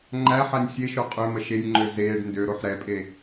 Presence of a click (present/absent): present